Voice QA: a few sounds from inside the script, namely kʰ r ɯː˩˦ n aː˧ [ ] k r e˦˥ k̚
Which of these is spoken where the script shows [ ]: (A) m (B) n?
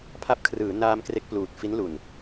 A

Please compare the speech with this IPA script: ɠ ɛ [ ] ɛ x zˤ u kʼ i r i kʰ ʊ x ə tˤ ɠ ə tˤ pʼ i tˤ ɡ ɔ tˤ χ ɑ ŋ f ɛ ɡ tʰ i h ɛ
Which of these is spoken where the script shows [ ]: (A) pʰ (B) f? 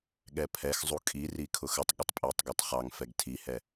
A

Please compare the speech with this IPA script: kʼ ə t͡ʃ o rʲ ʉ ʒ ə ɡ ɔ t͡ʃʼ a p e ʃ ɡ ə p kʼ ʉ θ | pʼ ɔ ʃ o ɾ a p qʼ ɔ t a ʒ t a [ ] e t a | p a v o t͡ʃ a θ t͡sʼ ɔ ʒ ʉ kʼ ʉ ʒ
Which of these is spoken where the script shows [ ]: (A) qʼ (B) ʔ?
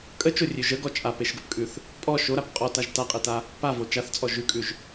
A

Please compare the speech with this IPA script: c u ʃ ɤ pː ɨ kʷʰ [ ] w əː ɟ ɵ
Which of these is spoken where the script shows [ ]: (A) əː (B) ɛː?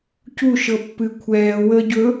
B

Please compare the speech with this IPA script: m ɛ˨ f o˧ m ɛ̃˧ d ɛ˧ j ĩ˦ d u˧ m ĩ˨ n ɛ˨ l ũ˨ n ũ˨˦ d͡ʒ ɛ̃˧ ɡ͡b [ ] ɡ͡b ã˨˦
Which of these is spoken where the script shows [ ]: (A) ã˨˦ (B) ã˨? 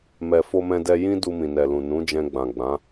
B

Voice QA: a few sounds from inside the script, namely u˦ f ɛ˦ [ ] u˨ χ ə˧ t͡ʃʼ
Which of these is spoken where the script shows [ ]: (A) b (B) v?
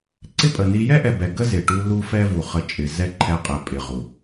B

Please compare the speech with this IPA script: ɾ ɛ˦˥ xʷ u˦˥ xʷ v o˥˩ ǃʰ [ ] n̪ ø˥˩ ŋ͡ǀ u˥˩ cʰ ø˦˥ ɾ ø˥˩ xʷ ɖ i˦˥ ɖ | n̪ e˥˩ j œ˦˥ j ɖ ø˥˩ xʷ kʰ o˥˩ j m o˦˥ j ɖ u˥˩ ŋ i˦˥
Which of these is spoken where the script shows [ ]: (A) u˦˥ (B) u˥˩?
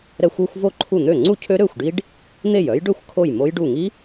B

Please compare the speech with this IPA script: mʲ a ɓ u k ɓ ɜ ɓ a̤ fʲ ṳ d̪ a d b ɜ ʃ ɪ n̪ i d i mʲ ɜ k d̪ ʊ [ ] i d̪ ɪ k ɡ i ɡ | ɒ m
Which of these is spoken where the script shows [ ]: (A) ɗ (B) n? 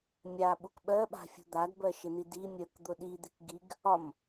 A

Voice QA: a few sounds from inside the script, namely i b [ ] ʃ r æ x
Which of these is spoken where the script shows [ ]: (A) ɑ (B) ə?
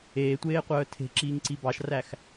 A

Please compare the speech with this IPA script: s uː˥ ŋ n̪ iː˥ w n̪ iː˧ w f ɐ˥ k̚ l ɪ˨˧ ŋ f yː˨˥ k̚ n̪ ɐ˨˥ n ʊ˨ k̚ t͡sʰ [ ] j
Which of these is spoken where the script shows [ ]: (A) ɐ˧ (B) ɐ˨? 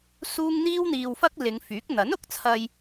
A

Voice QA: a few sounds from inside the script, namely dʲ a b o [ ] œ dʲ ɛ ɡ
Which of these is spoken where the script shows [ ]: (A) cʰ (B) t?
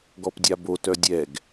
B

